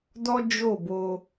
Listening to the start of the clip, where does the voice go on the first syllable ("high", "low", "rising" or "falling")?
high